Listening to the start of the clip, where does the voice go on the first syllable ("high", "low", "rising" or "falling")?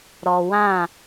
low